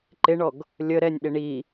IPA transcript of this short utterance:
ǃ ɪ ɳ ɔ ɡ | lʲ ə ɾ ɛ nʲ ɗ ɪ ɳ i

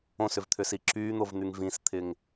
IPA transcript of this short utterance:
õ s ʏ v t̪ʰ ʏ s i ǁ yː n̪ o v n̪ y ŋ v ĩ s t̪ʰ ɪ ŋ

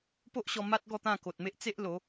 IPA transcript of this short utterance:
p o˦ ʔ ɕ ɔ˧ m a˦ t̚ ɡ ɔ˥˧ t̪ ã˥˧ k o˨ t̚ m e˦ ʔ t͡s e˦ ʔ l o˨˦

